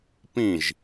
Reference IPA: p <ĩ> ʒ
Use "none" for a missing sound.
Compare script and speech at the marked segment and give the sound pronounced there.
ĩ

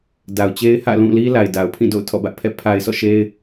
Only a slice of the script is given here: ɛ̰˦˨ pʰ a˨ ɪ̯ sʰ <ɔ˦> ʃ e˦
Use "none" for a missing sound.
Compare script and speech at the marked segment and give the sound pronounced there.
ɔ̰˦˨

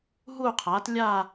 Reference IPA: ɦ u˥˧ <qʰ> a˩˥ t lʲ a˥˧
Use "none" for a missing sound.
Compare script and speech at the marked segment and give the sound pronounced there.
qʰ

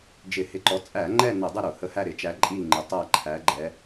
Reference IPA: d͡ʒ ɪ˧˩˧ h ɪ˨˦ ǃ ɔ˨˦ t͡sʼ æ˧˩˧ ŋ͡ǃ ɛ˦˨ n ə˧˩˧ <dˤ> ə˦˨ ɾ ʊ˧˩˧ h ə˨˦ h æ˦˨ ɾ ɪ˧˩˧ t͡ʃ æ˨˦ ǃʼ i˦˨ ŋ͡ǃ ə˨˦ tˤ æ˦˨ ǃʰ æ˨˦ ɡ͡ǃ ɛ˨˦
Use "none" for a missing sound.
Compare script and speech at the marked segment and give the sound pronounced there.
dˤ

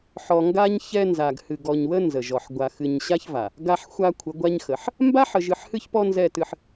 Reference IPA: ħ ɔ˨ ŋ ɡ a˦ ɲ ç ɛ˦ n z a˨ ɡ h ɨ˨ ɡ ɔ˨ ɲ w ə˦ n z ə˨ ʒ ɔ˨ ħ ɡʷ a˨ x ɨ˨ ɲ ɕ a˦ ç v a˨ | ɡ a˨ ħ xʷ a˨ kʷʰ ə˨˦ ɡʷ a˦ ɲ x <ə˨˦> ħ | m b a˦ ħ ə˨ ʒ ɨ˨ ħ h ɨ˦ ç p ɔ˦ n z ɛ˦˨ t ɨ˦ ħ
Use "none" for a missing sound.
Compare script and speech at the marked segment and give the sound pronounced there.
ə˨˦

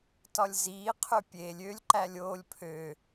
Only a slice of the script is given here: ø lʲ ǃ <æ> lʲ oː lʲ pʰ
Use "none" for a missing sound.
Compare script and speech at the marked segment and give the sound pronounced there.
æ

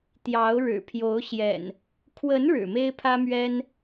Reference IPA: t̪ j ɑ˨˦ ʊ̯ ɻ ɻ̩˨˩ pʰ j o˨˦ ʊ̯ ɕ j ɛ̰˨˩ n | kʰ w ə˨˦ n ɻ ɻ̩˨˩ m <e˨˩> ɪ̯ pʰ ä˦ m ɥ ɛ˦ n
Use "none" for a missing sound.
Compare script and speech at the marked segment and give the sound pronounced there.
e˦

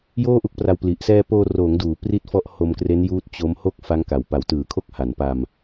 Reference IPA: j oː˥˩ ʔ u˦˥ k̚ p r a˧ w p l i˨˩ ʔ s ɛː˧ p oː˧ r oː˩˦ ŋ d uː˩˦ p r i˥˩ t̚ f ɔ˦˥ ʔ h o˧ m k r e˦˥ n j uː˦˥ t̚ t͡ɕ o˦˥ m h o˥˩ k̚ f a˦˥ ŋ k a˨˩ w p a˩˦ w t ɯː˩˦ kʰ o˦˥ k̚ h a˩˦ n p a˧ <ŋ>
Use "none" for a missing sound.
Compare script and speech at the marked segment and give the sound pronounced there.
m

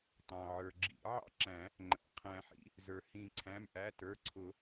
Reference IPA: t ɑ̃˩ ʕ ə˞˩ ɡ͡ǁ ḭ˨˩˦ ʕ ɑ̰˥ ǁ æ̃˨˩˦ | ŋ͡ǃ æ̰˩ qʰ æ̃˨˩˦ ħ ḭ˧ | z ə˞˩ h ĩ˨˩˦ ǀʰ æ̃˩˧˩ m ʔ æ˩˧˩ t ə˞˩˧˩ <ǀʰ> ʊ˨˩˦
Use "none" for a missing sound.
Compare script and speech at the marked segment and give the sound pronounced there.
ǀʰ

